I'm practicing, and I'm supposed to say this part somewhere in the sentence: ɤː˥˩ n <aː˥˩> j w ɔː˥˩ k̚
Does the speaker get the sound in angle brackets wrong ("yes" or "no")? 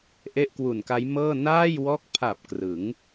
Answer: no